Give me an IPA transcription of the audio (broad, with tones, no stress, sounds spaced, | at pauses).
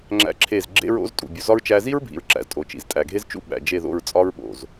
ŋ͡ǁ æ̰˦ ǁʰ e˦˨ z ɡ͡ǁ ḛ˦ ɹ o̰˦ z tʼ ṵ˨ bʲ u˨ z ɒ˦ ɹ t͡ʃ æ˧ z i˦ ɹ bʱ ḭ˨ ɹ ǁ æ̰˨ z tʼ o˨ t͡ʃ ḭ˨ z tʼ æ˨ ɡʱ e˦ z t͡ʃ ṵ˦ ɓ æ̰˨ d͡ʒ e˦˨ ð o̰˦˨ ɹ t͡sʼ ɒ˦ ɹ ɓ o̰˨ z